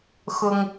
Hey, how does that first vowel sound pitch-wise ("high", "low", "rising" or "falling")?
high